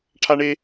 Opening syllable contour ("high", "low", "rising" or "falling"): high